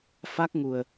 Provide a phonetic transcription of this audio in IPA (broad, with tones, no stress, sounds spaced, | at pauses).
f a˦˥ k̚ ŋ u˨˩ ə̯